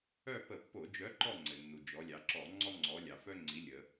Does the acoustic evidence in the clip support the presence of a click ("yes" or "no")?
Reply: yes